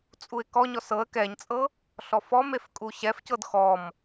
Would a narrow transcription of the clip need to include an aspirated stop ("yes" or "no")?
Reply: no